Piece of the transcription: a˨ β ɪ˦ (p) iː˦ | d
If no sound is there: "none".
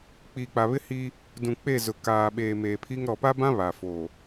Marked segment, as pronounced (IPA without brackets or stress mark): h